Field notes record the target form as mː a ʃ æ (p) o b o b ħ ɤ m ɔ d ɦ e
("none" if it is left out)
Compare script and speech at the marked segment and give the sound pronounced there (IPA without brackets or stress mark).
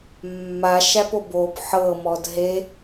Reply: p